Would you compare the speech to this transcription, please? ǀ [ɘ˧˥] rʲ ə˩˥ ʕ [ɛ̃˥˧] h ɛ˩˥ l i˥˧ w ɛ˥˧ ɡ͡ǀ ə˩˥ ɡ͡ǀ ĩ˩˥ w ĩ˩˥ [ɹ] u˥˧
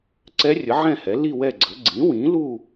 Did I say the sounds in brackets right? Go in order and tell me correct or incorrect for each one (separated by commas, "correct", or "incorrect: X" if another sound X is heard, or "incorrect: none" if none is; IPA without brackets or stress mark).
incorrect: ɛ˧˥, correct, incorrect: l